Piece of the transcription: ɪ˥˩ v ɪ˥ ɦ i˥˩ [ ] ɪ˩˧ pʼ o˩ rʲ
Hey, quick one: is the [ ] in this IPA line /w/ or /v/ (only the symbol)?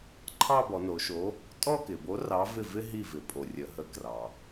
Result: v